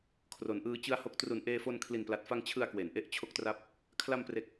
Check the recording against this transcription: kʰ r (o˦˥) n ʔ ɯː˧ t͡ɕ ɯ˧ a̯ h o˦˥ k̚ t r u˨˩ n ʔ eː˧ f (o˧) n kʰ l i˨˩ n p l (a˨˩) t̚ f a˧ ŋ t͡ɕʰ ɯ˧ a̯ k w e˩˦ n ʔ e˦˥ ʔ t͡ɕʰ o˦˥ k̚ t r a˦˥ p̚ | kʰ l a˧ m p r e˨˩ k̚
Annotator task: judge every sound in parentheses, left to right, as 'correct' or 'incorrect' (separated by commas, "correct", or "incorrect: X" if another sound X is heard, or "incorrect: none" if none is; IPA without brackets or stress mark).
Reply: incorrect: o˩˦, correct, correct